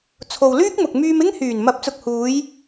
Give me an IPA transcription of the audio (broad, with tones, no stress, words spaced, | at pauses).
t͡sʰo˨w lyː˥k̚ mʊ˨k̚ myː˧mɪ˥ŋhyː˨˩n mɐ˨˥p̚t͡sʊ˨k̚huː˨˧j